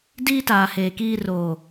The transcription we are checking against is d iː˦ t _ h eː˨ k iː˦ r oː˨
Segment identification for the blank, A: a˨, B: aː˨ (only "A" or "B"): B